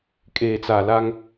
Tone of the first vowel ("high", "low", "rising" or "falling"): low